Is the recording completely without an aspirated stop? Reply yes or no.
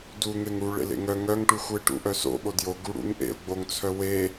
no